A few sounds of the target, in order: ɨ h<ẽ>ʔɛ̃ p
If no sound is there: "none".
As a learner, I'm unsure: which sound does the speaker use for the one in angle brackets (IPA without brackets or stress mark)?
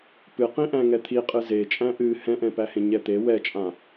ɛ̃